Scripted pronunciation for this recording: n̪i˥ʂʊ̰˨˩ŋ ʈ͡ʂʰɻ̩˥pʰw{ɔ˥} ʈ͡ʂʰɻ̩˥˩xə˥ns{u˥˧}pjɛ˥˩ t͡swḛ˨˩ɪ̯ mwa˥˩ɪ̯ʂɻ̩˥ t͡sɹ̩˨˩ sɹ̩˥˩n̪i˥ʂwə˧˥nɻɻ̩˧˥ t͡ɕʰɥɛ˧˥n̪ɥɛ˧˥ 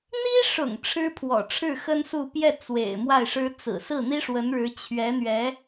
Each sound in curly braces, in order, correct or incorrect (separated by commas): incorrect, correct